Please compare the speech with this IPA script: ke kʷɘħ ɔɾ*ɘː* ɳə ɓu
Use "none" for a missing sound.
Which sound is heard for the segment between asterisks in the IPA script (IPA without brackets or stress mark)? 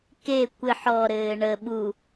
ɘː